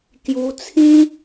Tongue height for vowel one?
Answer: high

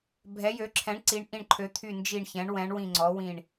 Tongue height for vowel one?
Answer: mid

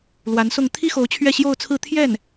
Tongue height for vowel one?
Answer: low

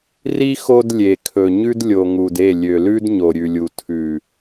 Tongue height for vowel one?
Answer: high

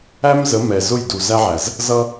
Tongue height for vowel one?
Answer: low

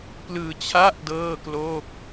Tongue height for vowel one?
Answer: high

